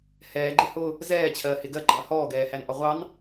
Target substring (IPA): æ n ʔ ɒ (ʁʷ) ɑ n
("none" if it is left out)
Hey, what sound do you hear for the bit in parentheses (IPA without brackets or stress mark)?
ʁʷ